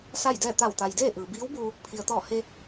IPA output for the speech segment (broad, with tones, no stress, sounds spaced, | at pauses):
s a˥˨ j d ɛː˥˨ t̪ a˧˩ w t̪ a˩ j d eː˥˨ ʔ ɯː˩ b iː˧˥ w b uː˧ | pʰ i˩ ə̯ t̪ ɔː˧˩ h e˧